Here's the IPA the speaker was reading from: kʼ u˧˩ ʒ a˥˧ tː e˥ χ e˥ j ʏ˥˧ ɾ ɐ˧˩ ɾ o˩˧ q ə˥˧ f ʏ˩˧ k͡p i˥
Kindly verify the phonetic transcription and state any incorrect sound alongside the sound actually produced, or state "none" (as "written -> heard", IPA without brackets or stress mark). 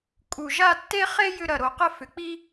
none